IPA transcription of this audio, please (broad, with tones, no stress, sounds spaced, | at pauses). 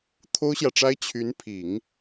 t̪ʰ o˥ ʊ̯ ɕ j ä˨ ʈ͡ʂ a˥ ɪ̯ t͡ɕʰ y˧˥ n pʰ i˨˩˦ ŋ